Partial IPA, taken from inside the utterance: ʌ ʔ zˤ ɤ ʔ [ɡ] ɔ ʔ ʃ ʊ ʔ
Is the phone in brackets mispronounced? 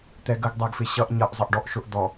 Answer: yes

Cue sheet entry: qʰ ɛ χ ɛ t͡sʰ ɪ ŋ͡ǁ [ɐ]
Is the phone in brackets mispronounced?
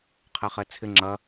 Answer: no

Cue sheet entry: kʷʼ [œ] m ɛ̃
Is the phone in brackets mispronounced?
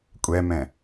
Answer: yes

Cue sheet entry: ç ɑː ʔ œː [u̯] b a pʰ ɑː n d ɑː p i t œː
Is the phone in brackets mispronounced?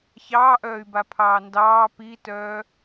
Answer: yes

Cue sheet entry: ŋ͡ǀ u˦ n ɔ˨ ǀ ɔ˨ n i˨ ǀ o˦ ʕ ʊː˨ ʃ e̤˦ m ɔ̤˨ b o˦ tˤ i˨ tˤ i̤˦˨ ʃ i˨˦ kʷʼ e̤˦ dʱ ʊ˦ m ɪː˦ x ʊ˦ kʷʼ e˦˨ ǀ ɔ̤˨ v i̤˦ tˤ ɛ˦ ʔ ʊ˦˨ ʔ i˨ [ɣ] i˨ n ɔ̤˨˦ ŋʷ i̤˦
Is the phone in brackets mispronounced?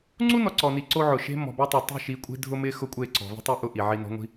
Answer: yes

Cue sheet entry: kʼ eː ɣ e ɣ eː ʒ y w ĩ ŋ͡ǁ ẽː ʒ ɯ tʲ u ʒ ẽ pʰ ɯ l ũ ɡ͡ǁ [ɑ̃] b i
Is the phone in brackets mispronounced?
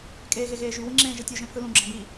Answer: no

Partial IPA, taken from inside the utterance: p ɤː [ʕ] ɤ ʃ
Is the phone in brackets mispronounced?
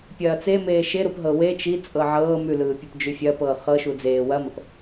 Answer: yes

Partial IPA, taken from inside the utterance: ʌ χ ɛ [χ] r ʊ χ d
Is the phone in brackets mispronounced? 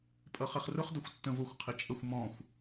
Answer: no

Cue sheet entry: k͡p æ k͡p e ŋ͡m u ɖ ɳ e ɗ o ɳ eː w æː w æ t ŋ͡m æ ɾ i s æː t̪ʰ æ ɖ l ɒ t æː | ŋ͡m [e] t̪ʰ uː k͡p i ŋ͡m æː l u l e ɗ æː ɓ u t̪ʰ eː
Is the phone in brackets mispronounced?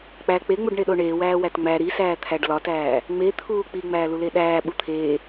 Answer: no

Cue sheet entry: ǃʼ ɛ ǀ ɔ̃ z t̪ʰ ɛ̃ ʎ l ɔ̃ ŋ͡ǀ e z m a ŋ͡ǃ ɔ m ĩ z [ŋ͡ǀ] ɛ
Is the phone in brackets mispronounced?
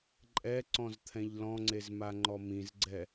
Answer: yes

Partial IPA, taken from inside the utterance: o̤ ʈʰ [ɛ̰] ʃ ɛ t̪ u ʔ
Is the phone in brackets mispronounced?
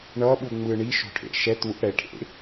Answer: yes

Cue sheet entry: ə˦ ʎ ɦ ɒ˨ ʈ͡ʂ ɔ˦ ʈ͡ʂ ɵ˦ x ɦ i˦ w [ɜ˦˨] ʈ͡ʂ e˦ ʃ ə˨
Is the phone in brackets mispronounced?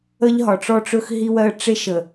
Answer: yes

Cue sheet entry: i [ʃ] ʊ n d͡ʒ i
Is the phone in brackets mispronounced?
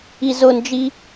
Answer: yes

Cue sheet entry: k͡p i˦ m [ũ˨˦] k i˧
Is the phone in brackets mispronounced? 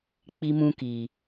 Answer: yes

